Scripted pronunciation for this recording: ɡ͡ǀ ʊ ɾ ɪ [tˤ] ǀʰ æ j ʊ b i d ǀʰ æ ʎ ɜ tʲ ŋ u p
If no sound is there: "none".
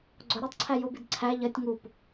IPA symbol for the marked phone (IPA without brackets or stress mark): tˤ